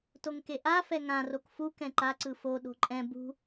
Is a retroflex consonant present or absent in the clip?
absent